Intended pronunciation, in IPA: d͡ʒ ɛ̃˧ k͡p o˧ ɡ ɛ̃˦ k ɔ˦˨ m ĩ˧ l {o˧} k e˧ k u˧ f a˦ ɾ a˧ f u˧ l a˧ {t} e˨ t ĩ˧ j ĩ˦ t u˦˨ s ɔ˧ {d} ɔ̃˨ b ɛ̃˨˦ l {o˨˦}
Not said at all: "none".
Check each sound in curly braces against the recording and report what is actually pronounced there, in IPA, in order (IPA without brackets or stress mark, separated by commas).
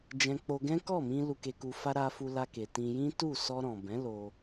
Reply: u˧, k, ɾ, o˧